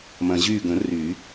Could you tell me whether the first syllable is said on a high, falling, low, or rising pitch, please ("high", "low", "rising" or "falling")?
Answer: low